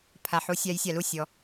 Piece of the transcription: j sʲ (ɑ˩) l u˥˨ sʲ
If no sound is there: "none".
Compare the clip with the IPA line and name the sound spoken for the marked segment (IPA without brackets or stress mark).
ɑ˩